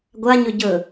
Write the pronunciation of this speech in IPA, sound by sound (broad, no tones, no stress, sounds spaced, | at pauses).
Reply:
ɡʷ a ɲ ɵ ɟ ɵ